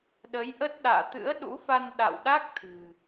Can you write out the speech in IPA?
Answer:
ɗə˨˦jʔə˦˥t̚ ɗa̰ː˧˨t̪ɨ̰˧˥ə̯ɗṵ˧˥fa˧n ɗa̰˧˨wɗa˦˥k̚ t̪ʰɨ̤˨˩

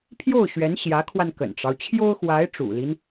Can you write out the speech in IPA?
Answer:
pʰjo˥˩ʊ̯ɕɥɛ˧˥nɕjä˧˥kʰwa˧n kə̰˨˩nʈ͡ʂɑ˦ʊ̯ t͡ɕʰjo˥ʊ̯xwa˧˥ɪ̯ ʈ͡ʂṵ˨˩li˦n

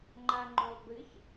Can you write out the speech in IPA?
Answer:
ŋ͡ǃaŋ͡ǃulˠbɨç

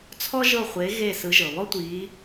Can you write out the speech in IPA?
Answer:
t͡sʰɔ˥ʒɤ˦˨ χʷe˨˦ ɣe˦˨sɯ˨˦ʒɤ˩ βɔ˥tʷi˨˦

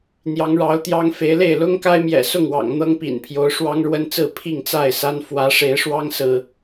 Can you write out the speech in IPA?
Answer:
n̪jɑ˨˦ŋɻɑ˨˦ʊ̯t̪jɑ˦ŋfe˨˦ɪ̯ le˥˨ɪ̯lʊ˦ŋka˦ɪ̯ mjɛ̰˨˩sʊ˥˨ŋwɑ̰˨˩ŋ n̪ɤ˦ŋ pḭ˨˩npʰjo˨˦ʊ̯ ʂwɑ˦ŋɻwə˦nt͡sɹ̩˥˨ pʰi˥˨ŋt͡sa˥˨ɪ̯sa˦n fwä˨˦ʂe˨˦ɪ̯ʂwɑ˦ŋsɹ̩˨

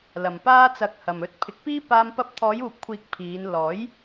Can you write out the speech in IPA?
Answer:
lɐ˨mpaː˥t͡sɐ˧k̚hɐ˨m ɵ˧t̚ pʰɪ˨˥k̚piː˥ paː˧m pɐ˧p̚ t̪ʰɔː˨˧juː˨p̚kʷʰiː˨˥k̚ pʰiː˨˧n lɔː˨˥j

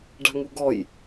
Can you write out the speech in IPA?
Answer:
ɖa̤ŋuɡɔj

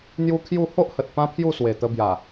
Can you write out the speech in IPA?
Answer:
n̪ju˦kʰju˥˧ ho˦ʔhə˨t̚ pã˦ pʰju˥˧swe˨˩ t̪ə˧bja˨˩

